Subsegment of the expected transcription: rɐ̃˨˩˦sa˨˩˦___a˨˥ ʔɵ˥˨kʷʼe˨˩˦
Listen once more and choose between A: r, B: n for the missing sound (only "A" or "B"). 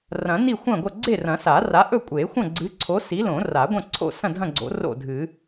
A